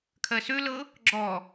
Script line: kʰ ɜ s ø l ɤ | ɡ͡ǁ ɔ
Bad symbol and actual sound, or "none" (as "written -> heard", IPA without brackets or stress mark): none